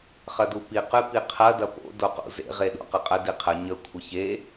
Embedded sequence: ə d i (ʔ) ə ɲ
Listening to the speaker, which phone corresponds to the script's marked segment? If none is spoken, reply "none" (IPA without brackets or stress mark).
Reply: qʰ